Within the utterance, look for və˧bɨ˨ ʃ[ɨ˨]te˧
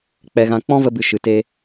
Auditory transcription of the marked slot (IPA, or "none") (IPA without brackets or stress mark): ɨ˨